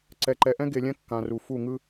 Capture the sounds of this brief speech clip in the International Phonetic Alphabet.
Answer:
ǀ ɛ˨ ǃ ɛ˨ ʔ ɛ̃˦ ɡ e˨ lʲ ɛ̃˦ kː ã˨ r u˨ f u˦˨ ŋ ɯ˦

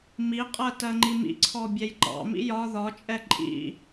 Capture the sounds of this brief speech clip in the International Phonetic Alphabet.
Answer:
m i qʼ ɜ t ɜ ŋ͡ǃ i m ḭ ǀʰ ɔ bʲ ɛ j ǃ ɑ̰ m ḭ j ɒ ð ɒ t͡ʃʼ ɛ ǃʼ ḭ

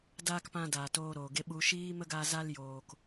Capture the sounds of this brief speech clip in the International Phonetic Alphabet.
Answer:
d aː˦ k p ã˧ d aː˨ t oː˧ ɾ oː˨ ɡ e˧ ɓ u˨ ʃ iː˦ m ə˦ ɡ a˧ z a˧ l j oː˨ k

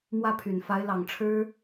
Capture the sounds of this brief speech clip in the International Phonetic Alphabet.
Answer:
m w ä˥˩ pʰ y˨˩ n f a˧˥ ɪ̯ l ɑ˨˩ ŋ ʈ͡ʂʰ ɻ̩˥

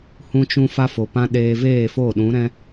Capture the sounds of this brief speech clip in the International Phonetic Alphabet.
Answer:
h ũ˧ t͡ʃ ũ˧ f a˦ f o˨ p ã˦ ɗ eː˧ v eː˦˨ f o˦˨ ɗ ũ˨˦ ɾ ɛ̃˦

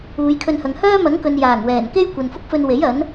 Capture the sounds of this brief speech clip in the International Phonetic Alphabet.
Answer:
uː˨˧ j kʰ ɵ˧ n h ɐ˨ ŋ h œː˥ m ɐ˨˥ ŋ k ɵ˨ n j aː˨˩ ŋ w ɛː˨˩ n k e˥ j kʷ ɐ˨ n f ʊ˥ k̚ f ɵ˧ n w e˨˥ j ɐ˨˥ n

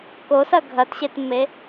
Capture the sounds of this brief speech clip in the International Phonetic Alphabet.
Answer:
k o s ɐ ɡʱ ɐ t ɕ e t mː e

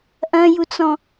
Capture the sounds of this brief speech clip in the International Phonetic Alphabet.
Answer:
ʔ ɐ̃ j u t͡s ɔ̃

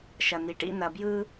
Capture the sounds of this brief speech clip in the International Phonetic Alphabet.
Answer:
ʃ ɐ˨ n̪ i˨ ʈ ḭ˦ n̪ ɐ˨ b j ɯ˦

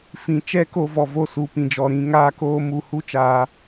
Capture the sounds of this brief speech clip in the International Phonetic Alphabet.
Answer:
f ĩ˨ t͡ʃ ɛ˦ k o˧ v ɔ˨ v o˧ s u˨ p ĩ˨ d͡ʒ ɔ˨ ɾ ĩ˧ ŋ aː˦ k oː˦ m u˧ h u˦ t͡ʃ aː˧

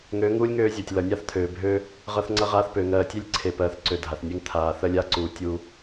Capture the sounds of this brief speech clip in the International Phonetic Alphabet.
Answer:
ŋ øː˨˦ ŋ uː˦ lʲ ŋ øː˦ zʲ ɜ˨ tʲ l ʌ˨ nʲ a˦ θ t̪ʰ øː˨ bʱ øː˦ | ʁ ʌ˧ θ ŋ͡ǀ ʌ˧ ʁ aː˧ θ p ø˨ ŋ ɜː˨ tʲ e˦ lʲ ǀʰ e˨ p ɜː˨ θ ǀ ø˨ dʱ a˨ θ nʲ e˦ ŋ t̪ʰ aː˧ θ ɜ˦ lʲ a˦ ǀ uː˨ tʲ uː˦

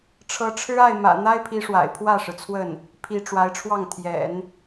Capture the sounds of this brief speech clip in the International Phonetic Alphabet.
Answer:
ʈ͡ʂʰ ɤ˧˥ ʈ͡ʂʰ ɻ̩˥ a˥˩ ɪ̯ m ä̰˨˩ n̪ a˥ ɪ̯ pʰ i˧˥ ʂ w a̰˨˩ ɪ̯ pʰ w ä˥˩ ʂ ɻ̩˩ t͡sʰ w ə˥˩ n | pʰ i˧˥ ʈ͡ʂ w a˧˥ ɪ̯ ʈ͡ʂʰ w ɑ˥˩ ŋ t̪ʰ j ɛ̰˨˩˦ n

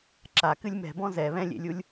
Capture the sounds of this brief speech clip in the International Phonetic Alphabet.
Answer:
ǁ a k ɨ lʲ m ɛ̤ b ɔ̃ z ɛ β ɛ̃ lʲ ḛ lʲ u lʲ

